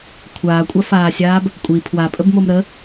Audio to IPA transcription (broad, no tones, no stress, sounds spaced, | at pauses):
kʷʰ aː kʷʼ a f aː sʲ aː b | kʷʼ i pʰ w a pʼ ə b m o m ɾ ə